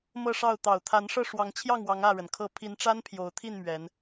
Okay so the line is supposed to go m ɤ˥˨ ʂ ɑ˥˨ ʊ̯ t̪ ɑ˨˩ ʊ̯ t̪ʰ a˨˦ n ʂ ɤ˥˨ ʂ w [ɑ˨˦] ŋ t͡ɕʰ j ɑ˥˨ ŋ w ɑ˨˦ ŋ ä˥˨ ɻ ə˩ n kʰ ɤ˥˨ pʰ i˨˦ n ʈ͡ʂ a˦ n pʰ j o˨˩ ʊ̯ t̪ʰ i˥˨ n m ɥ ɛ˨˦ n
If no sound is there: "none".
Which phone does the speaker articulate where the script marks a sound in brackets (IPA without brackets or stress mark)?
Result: ɑ˨˦